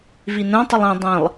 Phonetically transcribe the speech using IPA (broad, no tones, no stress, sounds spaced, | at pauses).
v i n ɛ̃ tˤ ə lˠ ĩ dˤ ĩ lˠ